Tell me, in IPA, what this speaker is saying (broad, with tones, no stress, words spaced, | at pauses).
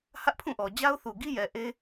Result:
hä˦ʔpʰũ˦˨ʔɔ˨ d͡ʑa˦ʊ̯θu˨ɡi˦jɛ˨ ʔe˦